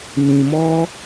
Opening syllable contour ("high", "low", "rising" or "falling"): low